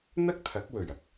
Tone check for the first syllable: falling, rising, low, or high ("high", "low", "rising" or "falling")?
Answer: high